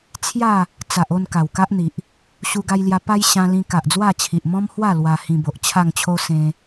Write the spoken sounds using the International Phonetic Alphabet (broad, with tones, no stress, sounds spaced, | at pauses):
t͡sʰ j a˥˧ | t͡s a˨ ʔ o˥˧ n k a˨˩ w k a˦ ʔ n̪ i˨ ʔ | ɕ u˧ ɡ a˧ j l j a˧ p a˦ j ɕ ã˧ l ĩ˧ k a˨ ʔ d͡z w a˥˧ t͡ɕʰ i˨ ʔ m ɔ̃˦ m h w a˥˧ l w a˧ h ĩ˧ b o˨ ʔ t͡ɕʰ a˥˧ ŋ t͡ɕʰ o˦ s ẽ˧